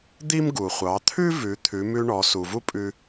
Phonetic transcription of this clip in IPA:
d̪ i˥ m ɡ u˩ χʷ ɑ˩˧ t̪ʰ ʉ˥ v ʉ˩˧ t̪ʰ ʉ˩˧ m ʉ˧ ɳ ɔ˩˧ s u˩ v u˥ pʼ ʉ˧

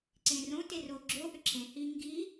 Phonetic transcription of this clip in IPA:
ǀ ẽ r õ t e r o ɡ͡ǁ o ʔ ʏ ǁʰ ẽ h i ŋ ɡ i

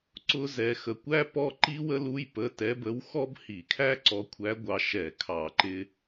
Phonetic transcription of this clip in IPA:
ǀ ʊ˥ z ɛ˧ x ə˧ kʷ æ˥ p ɔ˥ ǃ i˥ w ə˥ l u˧˥˧ j p ə˧˥˧ t ɛ˧˥ b ə˧˥ w x ɔ˥ b h i˧˩˧ kʰ æ˥ ǀ ɔ˧˥ kʷʰ æ˧˥ ɡʷ ɑ˧ ʃ ɛ˧˩˧ kʰ ɑ˧˩˧ ǃ ɪ˧

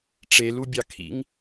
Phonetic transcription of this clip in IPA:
ʈ͡ʂ e l u bʲ ɑ kʰ ḭ ŋ

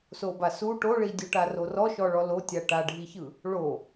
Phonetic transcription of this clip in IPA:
s o b a s u ʈ o ɭ i dʲ u ʈ a r o r ɔ ʃ ɔ ɭ ɔ l o tʲ a ʈ a ɖʱ i ç ɯ | ɭ o

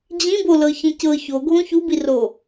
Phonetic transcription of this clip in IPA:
d͡ʑ ĩ b o l ɤ ç ĩ c ɤ ç o ɡʱ õ ç u b i r o

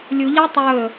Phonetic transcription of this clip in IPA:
lʲ u ʎ a tˤ ɵː

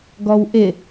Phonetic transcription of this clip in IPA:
ɡ ɔ w ʔ ɪ

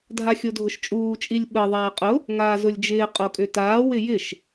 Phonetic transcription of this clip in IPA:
dʱ a xʲ o dʱ ʊ ʃ t͡ʃʼ uː t͡ʃʼ i lʲ ɓ ə ðˤ aː qʼ ʊ | ŋ aː z ʊ lʲ d͡ʒ ɪː qʼ o kʼ ʏ t aː w ɪ j ɪ ʃ

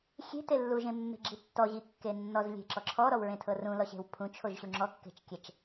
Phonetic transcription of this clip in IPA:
xʲ e̤ t e lː u ʒ ẽ mː e̤ ɡ͡ǁ i tː ɔ ʑ i kː e nː ɔ z lʲ e̤ ǁ ɔ ǁʰ ɔ ɾ ɔ w ɹ ẽ tʰ ɤ r ũ l ɔ ɕ e̤ w pʰ ũ t͡ʃʰ o ʒ ɕ u ŋ͡ǁ ɔ kː e̤ t͡ʃ kʲ ɛ t͡ʃ

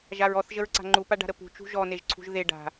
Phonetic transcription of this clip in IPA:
ʒ a ɹ ɔ θ ʒ ə ɹ ǀ a̤ ŋ͡ǃ u p a ɖ a̤ ɾ ə p ṳ t͡ʃ ṳ ʒ ɔ n e ʒ ǀʰ ṳ ʒ ð e ɖ a̤

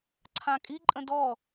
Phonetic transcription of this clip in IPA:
ǀʰ ã kʼ i ǃʼ ə̃ d ɔ

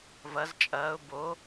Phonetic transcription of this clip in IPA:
v ɐ z t͡ʃʼ ɐː ʊ̯ b o

